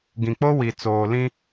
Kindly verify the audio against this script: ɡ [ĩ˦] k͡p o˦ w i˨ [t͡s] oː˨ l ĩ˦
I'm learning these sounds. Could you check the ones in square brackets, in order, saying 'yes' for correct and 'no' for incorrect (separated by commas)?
no, yes